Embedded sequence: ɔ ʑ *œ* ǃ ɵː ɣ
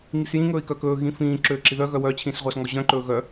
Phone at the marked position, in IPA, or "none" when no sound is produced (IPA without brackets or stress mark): œ̃